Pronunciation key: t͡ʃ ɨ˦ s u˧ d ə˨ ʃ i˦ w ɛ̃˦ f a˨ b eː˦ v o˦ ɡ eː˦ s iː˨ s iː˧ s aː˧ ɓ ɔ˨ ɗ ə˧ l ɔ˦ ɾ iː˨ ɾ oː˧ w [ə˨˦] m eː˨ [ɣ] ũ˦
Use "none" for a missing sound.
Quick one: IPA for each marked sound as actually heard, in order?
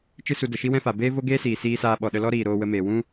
ə˧, w

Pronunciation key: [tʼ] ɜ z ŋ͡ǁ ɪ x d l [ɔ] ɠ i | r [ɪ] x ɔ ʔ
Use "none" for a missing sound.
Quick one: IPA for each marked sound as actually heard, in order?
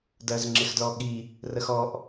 d, ɔ, ə

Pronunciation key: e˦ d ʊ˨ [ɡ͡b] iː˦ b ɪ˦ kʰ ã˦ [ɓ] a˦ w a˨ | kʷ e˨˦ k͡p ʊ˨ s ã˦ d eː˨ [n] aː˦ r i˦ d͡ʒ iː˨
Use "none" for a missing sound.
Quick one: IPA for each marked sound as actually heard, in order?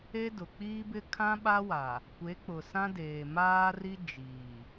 k͡p, ɓ, m

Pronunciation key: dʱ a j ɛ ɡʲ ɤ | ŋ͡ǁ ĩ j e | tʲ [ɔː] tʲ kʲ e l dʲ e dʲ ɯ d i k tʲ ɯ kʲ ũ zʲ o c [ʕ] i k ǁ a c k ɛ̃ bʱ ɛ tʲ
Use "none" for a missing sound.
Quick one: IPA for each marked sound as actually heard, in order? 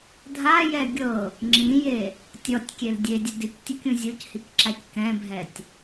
ɔ, h

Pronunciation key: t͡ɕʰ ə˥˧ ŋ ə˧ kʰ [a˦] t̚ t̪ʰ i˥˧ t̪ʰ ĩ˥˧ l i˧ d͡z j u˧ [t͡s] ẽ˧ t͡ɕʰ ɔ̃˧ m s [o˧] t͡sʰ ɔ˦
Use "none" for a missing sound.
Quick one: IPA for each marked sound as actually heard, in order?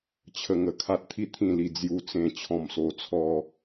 a˦, t͡s, o˧

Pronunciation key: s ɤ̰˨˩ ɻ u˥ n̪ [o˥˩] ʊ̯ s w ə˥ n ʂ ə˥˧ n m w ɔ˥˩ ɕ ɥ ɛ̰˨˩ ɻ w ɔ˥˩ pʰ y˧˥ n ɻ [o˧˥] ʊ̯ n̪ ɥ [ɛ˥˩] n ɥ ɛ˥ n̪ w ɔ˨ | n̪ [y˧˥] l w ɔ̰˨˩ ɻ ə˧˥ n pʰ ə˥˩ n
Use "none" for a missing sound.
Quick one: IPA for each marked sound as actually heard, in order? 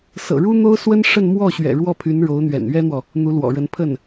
o˥, o˧˥, ɛ̰˨˩, u˧˥

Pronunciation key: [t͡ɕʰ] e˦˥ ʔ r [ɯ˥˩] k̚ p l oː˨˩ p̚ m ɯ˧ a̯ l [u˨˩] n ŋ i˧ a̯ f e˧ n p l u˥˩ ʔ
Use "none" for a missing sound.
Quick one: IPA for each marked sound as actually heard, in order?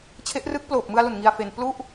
t͡ɕʰ, ɯ˦˥, u˨˩

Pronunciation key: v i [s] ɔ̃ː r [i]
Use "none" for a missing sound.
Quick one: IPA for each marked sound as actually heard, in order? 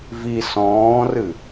s, ɨ

